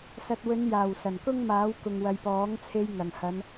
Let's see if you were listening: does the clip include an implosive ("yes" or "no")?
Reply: no